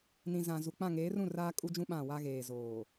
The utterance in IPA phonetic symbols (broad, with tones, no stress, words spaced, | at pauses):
nĩ˨zã˨ zu˨k͡pã˦˨ ŋeː˨˦rũ˦˨ raː˦ kʼu˦d͡ʒũ˦ ɓã˦˨wa˦ɣeː˨ zoː˨